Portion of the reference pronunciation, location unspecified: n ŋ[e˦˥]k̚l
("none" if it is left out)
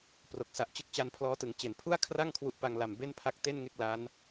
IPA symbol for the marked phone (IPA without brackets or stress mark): e˥˩